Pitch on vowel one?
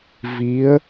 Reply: rising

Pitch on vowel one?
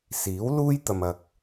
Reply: rising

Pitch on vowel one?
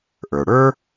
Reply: low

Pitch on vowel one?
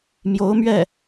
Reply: rising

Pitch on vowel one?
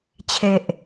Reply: low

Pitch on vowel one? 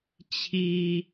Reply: low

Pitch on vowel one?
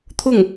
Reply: falling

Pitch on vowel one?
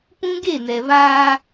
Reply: high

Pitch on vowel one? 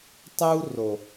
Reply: high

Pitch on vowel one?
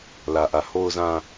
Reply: low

